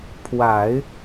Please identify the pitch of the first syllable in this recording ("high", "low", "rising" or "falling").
low